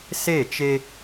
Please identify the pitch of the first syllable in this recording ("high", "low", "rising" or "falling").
falling